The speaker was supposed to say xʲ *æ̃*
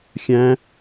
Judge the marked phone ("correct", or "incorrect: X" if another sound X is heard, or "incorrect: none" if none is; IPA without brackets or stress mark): correct